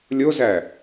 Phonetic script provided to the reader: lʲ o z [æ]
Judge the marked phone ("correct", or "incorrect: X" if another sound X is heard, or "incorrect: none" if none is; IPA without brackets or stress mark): correct